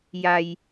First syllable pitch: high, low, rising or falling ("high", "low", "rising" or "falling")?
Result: low